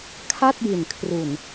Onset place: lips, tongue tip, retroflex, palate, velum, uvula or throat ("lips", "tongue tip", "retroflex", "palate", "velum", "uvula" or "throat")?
velum